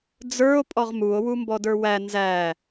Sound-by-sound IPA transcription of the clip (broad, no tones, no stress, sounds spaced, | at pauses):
d͡z ə˞ o̯ pʼ ɔ ʁ m u o̯ w u m b ɔ d ə˞ w æ n z æ